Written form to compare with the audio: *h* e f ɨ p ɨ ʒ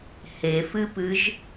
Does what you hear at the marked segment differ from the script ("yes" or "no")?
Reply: no